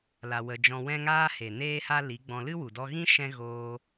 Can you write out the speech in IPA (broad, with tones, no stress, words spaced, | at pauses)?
la˧wə˧ d͡ʒɔ̃˧wɛ̃˦ŋaː˦he˨ neː˦ha˦ li˨˦ɡ͡bɔ̃˧ lɨ˦wu˨dɔ˧ɣĩ˦ ʃɛ̃˦ ɣoː˧